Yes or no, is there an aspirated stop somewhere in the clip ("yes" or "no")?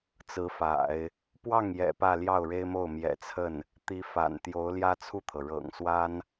yes